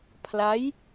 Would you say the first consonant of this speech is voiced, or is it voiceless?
voiceless